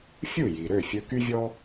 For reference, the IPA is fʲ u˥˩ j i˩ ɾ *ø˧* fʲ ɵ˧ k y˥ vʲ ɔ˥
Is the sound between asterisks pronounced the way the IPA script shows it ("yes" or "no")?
no